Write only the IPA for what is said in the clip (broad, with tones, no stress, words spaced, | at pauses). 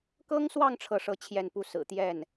kɤ˥ŋswɑ˥˧ŋ ʈ͡ʂʰɤ˥˧ʂɤ˥˧t͡ɕʰjɛ˥˧npu˥˩ sɹ̩˨˩t̪jɛ˥˩n